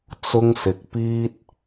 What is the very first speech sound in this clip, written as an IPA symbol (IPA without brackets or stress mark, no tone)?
t͡s